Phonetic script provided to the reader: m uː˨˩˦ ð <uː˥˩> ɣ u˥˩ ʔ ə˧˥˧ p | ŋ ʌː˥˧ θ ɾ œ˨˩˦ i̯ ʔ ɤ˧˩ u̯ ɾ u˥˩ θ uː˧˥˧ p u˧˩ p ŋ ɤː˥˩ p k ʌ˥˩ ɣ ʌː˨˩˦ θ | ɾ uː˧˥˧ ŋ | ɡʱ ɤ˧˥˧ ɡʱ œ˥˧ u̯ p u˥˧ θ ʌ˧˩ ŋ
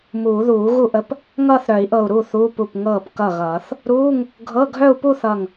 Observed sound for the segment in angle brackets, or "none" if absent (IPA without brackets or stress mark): uː˨˩˦